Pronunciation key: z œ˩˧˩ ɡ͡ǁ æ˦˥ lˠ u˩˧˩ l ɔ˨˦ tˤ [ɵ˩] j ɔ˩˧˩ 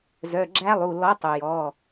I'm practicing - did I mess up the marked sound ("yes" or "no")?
no